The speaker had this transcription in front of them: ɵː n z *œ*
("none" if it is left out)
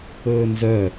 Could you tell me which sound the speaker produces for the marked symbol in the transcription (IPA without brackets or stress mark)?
œ